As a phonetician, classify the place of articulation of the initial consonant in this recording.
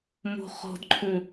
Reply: labial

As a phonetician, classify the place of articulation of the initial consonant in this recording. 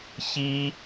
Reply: palatal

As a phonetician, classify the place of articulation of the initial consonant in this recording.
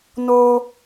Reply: alveolar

